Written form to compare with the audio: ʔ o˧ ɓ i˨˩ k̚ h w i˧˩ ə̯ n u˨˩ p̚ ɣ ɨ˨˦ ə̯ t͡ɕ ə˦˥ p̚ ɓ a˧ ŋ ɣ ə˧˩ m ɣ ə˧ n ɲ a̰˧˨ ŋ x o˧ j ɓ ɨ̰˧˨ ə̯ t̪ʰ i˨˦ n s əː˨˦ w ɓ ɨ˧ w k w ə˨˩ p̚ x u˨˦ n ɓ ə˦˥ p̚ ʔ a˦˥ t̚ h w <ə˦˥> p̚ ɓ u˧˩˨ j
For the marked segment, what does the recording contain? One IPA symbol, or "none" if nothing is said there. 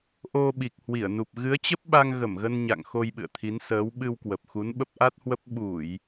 ə˦˥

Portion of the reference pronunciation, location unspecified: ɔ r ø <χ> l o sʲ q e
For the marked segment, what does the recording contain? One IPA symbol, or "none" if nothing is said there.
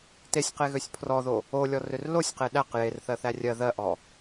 r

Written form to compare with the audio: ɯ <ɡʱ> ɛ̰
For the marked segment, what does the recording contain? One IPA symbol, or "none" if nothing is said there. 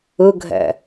ɡʱ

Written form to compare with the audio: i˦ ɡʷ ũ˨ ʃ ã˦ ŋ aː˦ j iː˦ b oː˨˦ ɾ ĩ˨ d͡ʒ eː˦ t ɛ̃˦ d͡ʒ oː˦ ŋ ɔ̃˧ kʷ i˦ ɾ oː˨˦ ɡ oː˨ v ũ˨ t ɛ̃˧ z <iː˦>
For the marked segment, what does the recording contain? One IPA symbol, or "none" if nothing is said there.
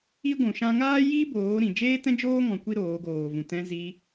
iː˧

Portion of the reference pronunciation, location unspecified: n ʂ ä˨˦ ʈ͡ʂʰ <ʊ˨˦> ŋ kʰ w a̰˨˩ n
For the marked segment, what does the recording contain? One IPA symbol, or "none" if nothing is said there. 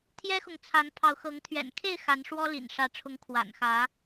ʊ˨˦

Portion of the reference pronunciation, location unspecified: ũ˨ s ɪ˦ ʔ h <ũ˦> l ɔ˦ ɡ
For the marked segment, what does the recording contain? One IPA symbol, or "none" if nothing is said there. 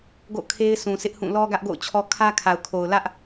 ũ˦˨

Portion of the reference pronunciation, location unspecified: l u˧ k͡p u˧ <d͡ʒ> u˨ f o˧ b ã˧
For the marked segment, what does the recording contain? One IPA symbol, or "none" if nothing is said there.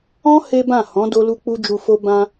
d͡ʒ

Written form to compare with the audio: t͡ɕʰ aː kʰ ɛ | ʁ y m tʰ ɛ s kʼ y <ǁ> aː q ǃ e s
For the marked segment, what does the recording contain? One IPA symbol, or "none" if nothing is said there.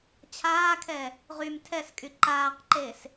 ǃ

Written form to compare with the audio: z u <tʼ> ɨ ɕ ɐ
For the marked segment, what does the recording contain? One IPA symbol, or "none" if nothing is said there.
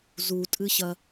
tʼ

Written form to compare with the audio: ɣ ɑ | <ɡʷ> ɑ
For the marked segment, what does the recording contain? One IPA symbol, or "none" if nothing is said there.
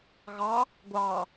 ɡʷ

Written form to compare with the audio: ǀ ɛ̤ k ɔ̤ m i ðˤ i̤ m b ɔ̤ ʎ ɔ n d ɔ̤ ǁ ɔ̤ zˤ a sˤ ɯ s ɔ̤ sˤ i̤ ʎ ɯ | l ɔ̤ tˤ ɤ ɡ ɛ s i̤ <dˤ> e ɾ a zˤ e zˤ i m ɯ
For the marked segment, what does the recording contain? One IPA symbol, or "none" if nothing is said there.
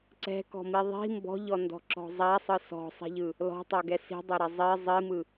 dˤ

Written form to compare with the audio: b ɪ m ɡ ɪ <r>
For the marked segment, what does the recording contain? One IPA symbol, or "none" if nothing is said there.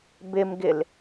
l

